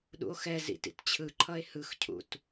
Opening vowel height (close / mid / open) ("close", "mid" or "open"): close